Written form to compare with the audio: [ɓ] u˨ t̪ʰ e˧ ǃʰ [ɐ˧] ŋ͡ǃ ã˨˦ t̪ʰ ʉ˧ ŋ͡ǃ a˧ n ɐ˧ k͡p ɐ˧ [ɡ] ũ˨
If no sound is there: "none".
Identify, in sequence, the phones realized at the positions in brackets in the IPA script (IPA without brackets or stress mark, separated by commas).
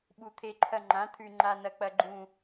ɓ, ɐ˧, ɡ͡ǃ